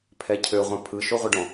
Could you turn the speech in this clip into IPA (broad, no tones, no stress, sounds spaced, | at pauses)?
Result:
pʰ ɛ cʰ ø ʁʷ ã pʰ ɯ ʃ o ʁʷ ə ɖ ɔ̃